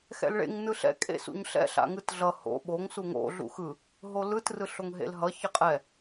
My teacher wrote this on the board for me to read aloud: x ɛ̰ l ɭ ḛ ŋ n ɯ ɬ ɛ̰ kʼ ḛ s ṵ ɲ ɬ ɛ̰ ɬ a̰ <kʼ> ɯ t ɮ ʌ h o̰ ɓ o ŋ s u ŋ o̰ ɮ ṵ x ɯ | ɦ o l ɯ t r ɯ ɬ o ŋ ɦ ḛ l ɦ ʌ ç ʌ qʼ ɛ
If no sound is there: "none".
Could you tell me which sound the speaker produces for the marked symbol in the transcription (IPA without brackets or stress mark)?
ŋ